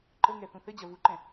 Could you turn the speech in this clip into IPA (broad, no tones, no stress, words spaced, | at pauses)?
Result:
ǃəŋɛ θũθɘd͡ʑɐ vuǃɛ̃